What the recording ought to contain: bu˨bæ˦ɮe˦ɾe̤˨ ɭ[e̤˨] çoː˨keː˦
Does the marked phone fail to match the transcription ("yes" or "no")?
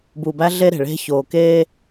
yes